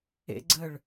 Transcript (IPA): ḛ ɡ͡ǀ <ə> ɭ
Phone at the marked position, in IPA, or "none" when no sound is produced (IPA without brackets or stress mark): ə